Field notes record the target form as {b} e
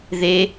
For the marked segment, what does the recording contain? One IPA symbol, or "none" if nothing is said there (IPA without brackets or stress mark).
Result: ð